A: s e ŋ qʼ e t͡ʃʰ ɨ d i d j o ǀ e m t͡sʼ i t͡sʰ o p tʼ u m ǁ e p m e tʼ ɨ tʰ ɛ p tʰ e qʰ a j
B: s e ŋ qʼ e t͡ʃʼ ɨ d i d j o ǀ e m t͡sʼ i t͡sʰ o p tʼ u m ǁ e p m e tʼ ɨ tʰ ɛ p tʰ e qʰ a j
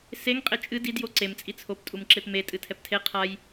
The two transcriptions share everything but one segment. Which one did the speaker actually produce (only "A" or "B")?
B